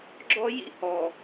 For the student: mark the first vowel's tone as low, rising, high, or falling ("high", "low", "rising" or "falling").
high